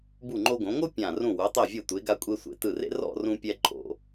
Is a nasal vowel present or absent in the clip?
present